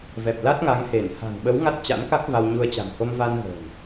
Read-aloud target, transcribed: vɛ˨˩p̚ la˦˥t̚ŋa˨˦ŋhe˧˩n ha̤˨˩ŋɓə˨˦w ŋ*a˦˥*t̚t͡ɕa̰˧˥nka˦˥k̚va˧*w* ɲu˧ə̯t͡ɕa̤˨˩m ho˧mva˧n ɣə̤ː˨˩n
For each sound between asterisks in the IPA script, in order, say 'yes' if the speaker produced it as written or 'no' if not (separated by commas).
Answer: yes, yes